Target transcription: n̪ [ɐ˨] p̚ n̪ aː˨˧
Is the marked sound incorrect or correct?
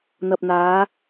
correct